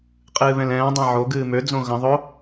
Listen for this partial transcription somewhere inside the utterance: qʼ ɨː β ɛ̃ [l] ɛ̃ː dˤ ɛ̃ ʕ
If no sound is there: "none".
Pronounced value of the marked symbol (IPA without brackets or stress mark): l